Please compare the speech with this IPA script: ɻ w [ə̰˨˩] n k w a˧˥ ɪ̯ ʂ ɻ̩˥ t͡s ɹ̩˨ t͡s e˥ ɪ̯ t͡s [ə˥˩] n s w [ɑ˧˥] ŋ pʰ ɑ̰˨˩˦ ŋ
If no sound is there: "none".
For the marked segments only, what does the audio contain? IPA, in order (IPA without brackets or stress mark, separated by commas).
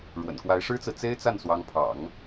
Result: ə̰˨˩, a˥˩, ɑ˧˥